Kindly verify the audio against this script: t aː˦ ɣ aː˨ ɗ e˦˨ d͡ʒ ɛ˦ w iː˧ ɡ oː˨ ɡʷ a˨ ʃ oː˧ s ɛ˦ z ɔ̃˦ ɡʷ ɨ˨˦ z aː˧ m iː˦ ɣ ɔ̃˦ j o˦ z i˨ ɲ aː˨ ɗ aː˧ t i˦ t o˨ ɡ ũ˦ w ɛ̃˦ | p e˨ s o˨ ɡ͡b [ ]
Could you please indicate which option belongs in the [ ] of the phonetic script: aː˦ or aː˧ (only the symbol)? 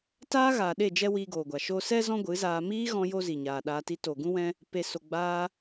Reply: aː˧